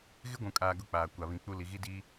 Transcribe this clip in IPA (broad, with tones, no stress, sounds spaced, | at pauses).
ɣ ɪ˦ ɡʷ ũ˨ kʼ aː˨ ɡ ʊ˦ k͡p aː˨ kʷ a˨ β ĩ˨ k͡p u˦ l i˨ ɣ i˦ d iː˦